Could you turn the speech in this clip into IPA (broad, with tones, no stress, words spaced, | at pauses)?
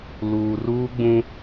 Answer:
luː˨ruː˦ɡ͡bũ˦